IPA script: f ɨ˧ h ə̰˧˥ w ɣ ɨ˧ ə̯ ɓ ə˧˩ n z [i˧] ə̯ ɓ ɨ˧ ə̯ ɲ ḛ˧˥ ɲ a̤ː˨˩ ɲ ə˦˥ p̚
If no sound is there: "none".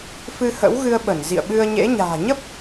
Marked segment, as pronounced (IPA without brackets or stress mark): ḭ˧˨